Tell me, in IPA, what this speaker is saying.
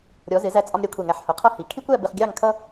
ɾʲ ɔ˩˧ z ɪ˩˧ z æ˧ t͡sʼ ɒ˧ m ɾʲ æ˩˧ kʷʰ ɛ˧˩ ŋ æ˧˩ ħ h ʊ˩˧ qʰ ʌ˥˧ h i˩˧ kʰ i˥ kʷ æ˥˧ b ɪ˧ χ ɡʲ ɑ˥˧ ŋ kʰ ʌ˥

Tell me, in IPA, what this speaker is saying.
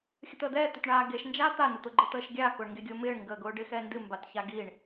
xʲ ə t̪ əː d̪ ɛː t̪ ʏ t ɳ aː ɡ e ʃ n d͡ʒ aː t̪ a n ʊ t̪ ʊ ɡ͡ǃ ə t̪ əː ʃ ɡʲ aː k ʊː ɳ ŋ ɡ e ɡʲ ʊː m ɪː ɳ ŋ ɡ əː ɡ ʊː ɖ ɪ x ɛ n d ɨ m b a t ç a ɡ i ɳ

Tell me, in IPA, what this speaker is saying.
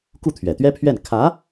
k u˥˩ t̪ʰ ɥ ɛ˨˩ t̪ ɥ ɛ˥ pʰ ɥ ɛ˥˩ n kʰ ä˧˥

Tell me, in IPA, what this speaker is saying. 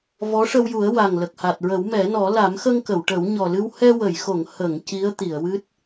v ɔ˧˥ ʂ ə˧ w j u˨˩˦ ə̯ w a˨˩ ŋ l ə˨˩ k̚ h a˨˩ t̚ ɹ ə˨˩˦ w m ɛ˨˩˦ n ɔ˨˩˦ l a˨˩˦ m x ə˧ ŋ k ə˨˩˨ w ʈ ə˨˩˦ w ɲ ɔ˨˩ l ɨ˧ w h ɛ˧ w ə˨˩˨ j x o˨˩˨ ŋ h ə˨˩˨ ŋ c i˧˥ ə̯ t̪ i˨˩˨ ə̯ w ɨ˦˥ t̚

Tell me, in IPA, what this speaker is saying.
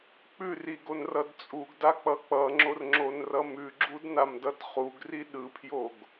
k͡p ʉ r i ɡ o n r ʌ d t͡sʼ u ɡ d a k͡p ʌ k͡p ʌ ŋ͡ǁ o r ŋ͡ǁ o n r ʌ m ʉ ɡ͡ǁ u d n a m d ʌ d χ u ɡ r i ɗ ɯ pʰ j o ɡ

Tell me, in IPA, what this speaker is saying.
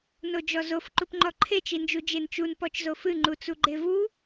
n o d͡ʒ ɔ z o f ǃ u p ŋ͡ǃ ɔ ǃʰ e t͡ʃ i n d͡ʒ u d͡ʒ e n t͡ʃ u n p ɔ t͡ʃ z o f ɨ ŋ͡ǃ u t͡s u ɡ͡ǃ e v u

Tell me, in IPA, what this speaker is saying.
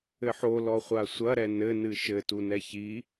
ɘ ħ o l ɔ χʷ a sʷ ɐ ɾ ɛ n ɘ n ɨ ʃ ɘ t u n ɛ ç i

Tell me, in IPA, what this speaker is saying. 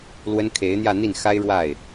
l w ə˥ n kʰ e˧˥ ɪ̯ n̪ j ä˥˧ n̪ i˥˩ n x a˥ ɪ̯ ɻ w a˥˩ ɪ̯

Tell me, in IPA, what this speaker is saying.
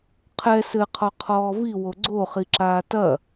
qʰ ɛ s ɘ qʰ ɔ qʰ ɔː v i w o ɡ͡ǀ o χ i ǁ aː t ɐ

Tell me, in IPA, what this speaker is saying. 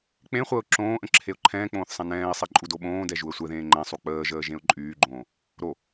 k͡p ẽ χʷ əː ʊ̯ ǁ õː ʔ ə̃ ǁʰ e ʊ̯ ǃʰ ɛ̃ː k͡p õː θ sˤ ɛ̃ n ɛ̃ː ɪ̯ sˤ e ǃʼ u d o ɓ õː d ɛ ʒ u ə̯ sʷ ɛ ð ẽː ŋ͡ǃ ɛ̃ sˤ u k͡p əː ʒ əː ʒ ẽ ʊ̯ ǃʼ yː ɡ͡ǃ õː | ɾ o

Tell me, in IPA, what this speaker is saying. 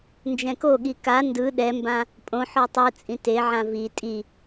n d͡ʒ ɛ̃ k o ɠ i k a n d ɯ ɗ ɛ m b ã | pʼ õ ħ ɔ tˤ ɯ t͡sʼ ĩ t e ʕ ã v i tʼ i

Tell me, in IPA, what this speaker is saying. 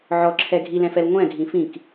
ʕ ɔ ǁʰ ɛ ɡʱ i l ɛ̃ f ɛ l ŋʷ ɛ̃ ɡʱ ĩ f ĩ k

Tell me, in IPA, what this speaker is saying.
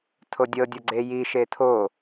tʰ o dʲ ɤ dʲ ɔ ɡ͡ǀ e j i ʃ e tʰ o

